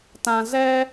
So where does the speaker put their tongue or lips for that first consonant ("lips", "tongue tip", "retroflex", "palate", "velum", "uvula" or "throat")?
tongue tip